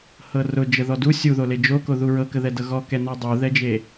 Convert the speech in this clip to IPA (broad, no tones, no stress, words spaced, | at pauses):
hɤrʊ d͡ʒəðɔdu sʲuðole d͡ʒokoðu ɹɤkəðɛ dɤɣɔkɛnɔ dˤuðɛd͡ʒe